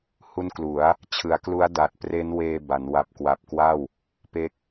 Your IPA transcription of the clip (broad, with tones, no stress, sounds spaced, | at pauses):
h u˦˥ n k l u˩˦ a̯ | t͡ɕʰ ɯ˩˦ a̯ k l u˦˥ a̯ d a˨˩ t̚ p r e˦˥ n w eː˧ b a˩˦ n w a˨˩ p̚ k w a˨˩ p̚ k w a˥˩ w | p e˦˥ k̚